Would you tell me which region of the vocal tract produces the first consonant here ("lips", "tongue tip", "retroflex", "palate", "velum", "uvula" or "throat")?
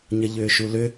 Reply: palate